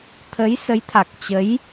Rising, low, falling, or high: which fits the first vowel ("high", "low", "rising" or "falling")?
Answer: rising